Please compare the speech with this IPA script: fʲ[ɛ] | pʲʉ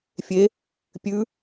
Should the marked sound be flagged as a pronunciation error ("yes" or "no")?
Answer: yes